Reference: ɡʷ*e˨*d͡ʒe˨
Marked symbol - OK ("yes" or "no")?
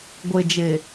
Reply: yes